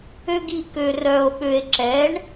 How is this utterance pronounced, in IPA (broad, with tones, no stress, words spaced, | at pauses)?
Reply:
ø˥ɡi˥˧ kø˧rœ˧o̯ɓø˧e̯ ǁɛ˨˥ɳ